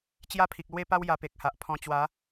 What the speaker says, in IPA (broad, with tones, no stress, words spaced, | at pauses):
t͡ɕja˦ pʰi˨k̚lwe˥˧pa˦w ja˧pe˨k̚ha˨ʔ pʰɔ̃˧ t͡ɕwa˨˦